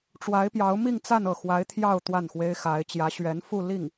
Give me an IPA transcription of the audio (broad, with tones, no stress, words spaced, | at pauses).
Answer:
ʈ͡ʂwa˧˥ɪ̯pjɑ˧˥ʊ̯ mi˥˧ŋt͡sa˥˧nɤ˥˩ xwa˧˥ɪ̯t̪ʰjɑ˥˧ʊ̯ t̪wa˥˩nxwe˥ɪ̯xa˧˥ɪ̯ t͡ɕjä˧˥ɕɥɛ˧˥nfu˥˧li˥˩ŋ